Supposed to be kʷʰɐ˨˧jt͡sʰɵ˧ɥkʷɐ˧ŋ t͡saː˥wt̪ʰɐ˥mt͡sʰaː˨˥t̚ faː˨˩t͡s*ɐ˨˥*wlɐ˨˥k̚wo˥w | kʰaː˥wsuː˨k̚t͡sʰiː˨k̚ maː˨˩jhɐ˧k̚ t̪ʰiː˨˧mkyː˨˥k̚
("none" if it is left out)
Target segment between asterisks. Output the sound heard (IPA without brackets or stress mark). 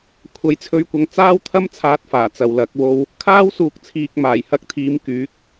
ɐ˨